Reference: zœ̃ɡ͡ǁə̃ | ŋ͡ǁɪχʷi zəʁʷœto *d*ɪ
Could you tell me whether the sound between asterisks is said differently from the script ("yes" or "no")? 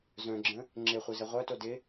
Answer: no